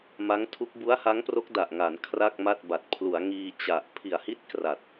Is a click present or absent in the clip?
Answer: absent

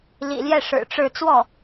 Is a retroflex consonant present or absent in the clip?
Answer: present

